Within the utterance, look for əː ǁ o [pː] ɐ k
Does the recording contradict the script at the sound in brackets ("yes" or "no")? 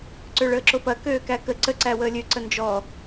yes